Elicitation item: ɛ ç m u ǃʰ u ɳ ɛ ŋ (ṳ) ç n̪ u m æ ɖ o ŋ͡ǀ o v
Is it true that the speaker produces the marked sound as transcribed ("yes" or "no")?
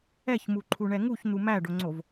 no